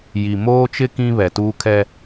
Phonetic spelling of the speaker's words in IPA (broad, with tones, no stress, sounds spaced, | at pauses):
j i˨ m oː˦ t͡ʃ ɪ˦ k ĩ˦ β ɛ˨ t uː˦ kʰ ɛ˦